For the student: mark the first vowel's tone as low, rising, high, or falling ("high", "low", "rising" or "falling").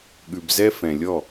low